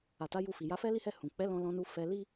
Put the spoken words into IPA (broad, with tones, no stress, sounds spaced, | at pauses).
a˨ t a˨˦ j u˧ f i˨ j a˨˦ f ɛ˦ l i˦ h ɛ˦˨ h ũ˨ k͡p ɛ˨˦ l ɔ̃˧ l ɔ̃˧ n u˧ f ɛ˧ l i˦